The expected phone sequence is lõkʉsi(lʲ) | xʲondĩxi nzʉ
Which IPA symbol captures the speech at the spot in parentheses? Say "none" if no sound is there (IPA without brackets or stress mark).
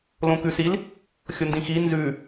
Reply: l